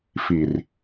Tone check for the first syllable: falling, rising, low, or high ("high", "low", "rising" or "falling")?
low